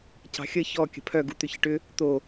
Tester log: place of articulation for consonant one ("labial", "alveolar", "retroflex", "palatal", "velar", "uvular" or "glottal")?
palatal